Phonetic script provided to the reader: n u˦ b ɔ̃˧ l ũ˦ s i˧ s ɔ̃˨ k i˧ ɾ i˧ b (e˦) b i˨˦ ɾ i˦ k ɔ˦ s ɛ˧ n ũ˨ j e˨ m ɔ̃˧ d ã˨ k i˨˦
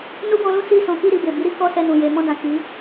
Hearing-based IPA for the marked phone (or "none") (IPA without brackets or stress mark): e˨